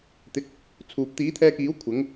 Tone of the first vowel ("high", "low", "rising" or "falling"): low